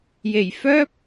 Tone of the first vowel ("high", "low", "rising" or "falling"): low